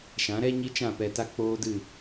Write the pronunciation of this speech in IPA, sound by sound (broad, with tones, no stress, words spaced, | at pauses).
ʃã˨˦ɾɛ˦ ɲi˦t͡ʃã˦˨pɛ˧ta˦ k͡poː˦dɨ˦˨